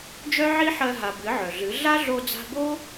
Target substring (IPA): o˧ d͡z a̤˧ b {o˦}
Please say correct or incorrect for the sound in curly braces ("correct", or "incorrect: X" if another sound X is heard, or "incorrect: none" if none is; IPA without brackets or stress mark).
correct